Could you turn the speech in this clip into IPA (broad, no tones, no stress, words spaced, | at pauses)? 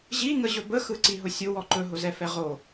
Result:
ʑiŋəʑɵ bəxɯǀiɦʊ sʲʊwɔ ǃɵɦʊzɛfɛ ʁo